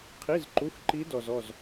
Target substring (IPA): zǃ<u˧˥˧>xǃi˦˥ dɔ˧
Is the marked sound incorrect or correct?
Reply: correct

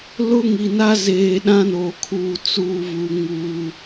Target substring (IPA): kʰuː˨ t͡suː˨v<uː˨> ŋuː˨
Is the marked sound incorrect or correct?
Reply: incorrect: u˨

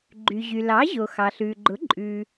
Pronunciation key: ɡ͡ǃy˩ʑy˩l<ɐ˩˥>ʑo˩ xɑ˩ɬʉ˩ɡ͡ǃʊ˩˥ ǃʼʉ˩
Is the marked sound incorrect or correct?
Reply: incorrect: ɑ˩˥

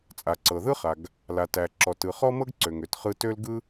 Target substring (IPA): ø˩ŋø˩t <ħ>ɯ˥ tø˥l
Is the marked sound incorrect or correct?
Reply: incorrect: χ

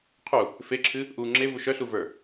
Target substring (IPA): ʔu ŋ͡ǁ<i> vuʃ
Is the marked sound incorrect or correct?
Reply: incorrect: e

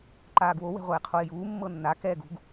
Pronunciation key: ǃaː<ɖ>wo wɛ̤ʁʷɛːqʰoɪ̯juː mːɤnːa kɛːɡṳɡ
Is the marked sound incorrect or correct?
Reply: incorrect: ɡ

